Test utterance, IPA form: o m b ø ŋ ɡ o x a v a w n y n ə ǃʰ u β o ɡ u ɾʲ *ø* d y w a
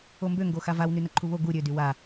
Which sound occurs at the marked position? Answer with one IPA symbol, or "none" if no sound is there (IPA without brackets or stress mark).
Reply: ø